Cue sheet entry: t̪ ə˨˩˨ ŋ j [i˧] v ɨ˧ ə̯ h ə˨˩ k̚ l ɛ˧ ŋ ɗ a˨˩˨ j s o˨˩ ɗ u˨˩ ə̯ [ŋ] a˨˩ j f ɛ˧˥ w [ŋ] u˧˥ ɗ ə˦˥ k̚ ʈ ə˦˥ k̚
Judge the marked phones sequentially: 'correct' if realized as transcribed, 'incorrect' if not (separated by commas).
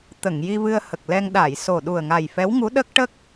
correct, correct, correct